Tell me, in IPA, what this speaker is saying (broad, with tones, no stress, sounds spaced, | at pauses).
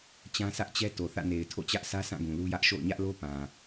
t͡ɕ ã˦ s ä˦ ʔ t͡ɕ ɛ˦ t o˨ θ ä̰˦˨ n e˨ ɪ̯ tʰ o̰˦˨ t͡ɕ ä˦ ʔ s ä˦ s ã˦˨ ɡ ũ˨ l u˦ j ä˦ ʔ ʃ o̰˦˨ ʊ̯ ɲ ä˦ ʔ l o˦ p ã˨